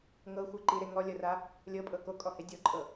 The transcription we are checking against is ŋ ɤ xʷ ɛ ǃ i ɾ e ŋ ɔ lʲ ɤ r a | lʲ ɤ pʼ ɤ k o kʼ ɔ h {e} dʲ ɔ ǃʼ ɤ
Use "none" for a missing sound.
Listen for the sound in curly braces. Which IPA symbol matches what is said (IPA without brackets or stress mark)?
e